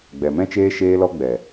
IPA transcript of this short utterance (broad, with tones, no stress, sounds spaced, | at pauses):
ɡ͡b ɛ˨ m ɛ̃˦ t͡ʃ eː˦ ʃ eː˧ l ɔ˧ ɡ͡b ɛ˨